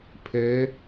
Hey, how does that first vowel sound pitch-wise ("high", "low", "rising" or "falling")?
rising